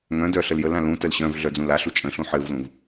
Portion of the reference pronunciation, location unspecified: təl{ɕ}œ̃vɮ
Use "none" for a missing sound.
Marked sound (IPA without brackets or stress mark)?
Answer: ɕ